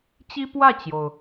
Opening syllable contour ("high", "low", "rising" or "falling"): high